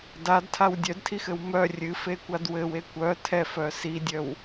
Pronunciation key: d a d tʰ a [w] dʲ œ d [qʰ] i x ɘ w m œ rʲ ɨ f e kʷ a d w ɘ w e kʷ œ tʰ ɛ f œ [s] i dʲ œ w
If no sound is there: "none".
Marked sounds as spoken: w, tʰ, s

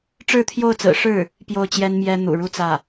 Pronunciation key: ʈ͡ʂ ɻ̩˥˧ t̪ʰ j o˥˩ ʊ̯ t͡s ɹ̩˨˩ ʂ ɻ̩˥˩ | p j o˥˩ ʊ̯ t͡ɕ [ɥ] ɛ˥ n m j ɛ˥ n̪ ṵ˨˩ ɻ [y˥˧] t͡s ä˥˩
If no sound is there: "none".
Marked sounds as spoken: j, u˥˧

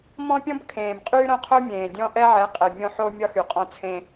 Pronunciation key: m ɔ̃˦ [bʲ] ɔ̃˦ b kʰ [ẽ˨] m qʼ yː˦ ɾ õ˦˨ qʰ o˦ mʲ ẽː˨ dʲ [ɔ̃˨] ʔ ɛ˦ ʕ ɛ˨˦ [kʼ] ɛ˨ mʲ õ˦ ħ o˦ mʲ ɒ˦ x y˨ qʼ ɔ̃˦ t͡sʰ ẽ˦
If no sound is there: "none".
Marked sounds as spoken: pʲ, ẽː˨, ɔ̃˦, qʼ

